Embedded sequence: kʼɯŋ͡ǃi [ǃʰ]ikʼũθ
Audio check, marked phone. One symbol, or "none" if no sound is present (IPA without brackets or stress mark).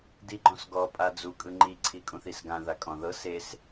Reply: ǀʰ